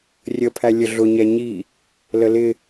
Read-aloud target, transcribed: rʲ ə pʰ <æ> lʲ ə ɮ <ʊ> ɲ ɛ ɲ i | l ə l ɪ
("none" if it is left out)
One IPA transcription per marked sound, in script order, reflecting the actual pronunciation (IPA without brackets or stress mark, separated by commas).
æ, ʊ